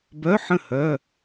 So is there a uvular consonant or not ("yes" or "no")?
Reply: no